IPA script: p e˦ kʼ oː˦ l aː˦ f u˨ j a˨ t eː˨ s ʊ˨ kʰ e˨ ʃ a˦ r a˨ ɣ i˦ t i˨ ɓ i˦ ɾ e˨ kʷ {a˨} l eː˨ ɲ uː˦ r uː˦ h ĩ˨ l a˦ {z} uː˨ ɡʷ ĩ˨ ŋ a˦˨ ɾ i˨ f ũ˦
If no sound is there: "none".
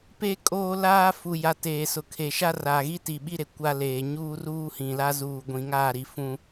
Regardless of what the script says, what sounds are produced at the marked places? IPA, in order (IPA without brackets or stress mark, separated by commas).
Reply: a˦, z